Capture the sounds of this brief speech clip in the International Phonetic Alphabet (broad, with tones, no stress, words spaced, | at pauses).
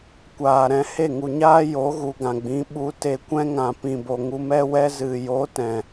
kʷaː˨ɾɛ̃˧ he˦˨ŋu˨ɲaː˦ jo˨˦ɣu˨ɡã˨ɡ͡bĩ˨˦ ɓu˧te˧kʷɛ̃˦ ŋã˨pĩ˨bo˨ŋu˧ mɛ˦wɛ˦ zɨ˨jo˨˦ tɛ̃˨